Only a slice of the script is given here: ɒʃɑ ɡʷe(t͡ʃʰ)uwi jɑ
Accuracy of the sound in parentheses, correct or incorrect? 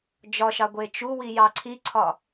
incorrect